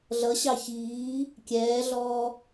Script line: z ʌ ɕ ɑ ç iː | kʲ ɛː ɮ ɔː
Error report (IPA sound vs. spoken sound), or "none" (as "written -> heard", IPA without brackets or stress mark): z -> ɮ